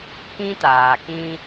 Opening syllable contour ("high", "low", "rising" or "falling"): high